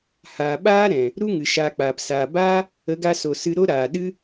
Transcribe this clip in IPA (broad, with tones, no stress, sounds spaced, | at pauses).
h aː˨ ɓ aː˦ ɾ ɛ̃˨ | ɾ u˦ ŋ ɨ˨ ʃ aː˧ k͡p aː˨ p s aː˨ b aː˦ | ə˨˦ ɡ a˧ s o˨ s ɨ˧ ɾ o˦ ɾ aː˨ ɗ ɨ˦